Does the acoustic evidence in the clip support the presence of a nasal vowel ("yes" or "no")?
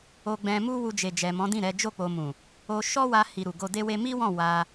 yes